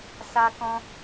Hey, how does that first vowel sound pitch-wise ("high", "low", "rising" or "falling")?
high